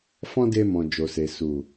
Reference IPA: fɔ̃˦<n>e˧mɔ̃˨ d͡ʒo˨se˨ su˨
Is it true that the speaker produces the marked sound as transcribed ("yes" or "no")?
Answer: no